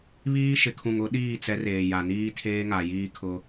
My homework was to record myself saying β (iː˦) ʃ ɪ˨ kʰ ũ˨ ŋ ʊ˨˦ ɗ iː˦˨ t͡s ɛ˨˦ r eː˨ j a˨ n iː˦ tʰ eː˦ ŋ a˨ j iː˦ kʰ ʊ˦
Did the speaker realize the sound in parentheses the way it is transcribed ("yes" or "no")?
yes